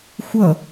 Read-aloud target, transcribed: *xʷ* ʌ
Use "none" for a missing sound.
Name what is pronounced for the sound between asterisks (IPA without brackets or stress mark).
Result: xʷ